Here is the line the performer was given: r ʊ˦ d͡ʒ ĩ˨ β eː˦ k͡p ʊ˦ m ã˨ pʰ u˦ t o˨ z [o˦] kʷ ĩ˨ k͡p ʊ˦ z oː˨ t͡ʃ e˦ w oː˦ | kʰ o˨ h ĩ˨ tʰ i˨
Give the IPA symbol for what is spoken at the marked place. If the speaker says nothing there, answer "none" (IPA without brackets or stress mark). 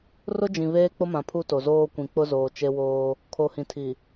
oː˦